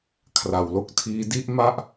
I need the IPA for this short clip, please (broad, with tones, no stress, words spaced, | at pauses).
kʰra˩˦wlo˥˩k̚tʰiː˦˥ di˥˩ʔma˥˩ʔ